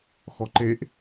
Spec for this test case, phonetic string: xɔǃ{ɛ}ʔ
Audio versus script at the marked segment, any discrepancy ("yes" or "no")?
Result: yes